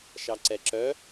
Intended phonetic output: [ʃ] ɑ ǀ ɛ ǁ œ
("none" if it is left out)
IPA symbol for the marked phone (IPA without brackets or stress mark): ʃ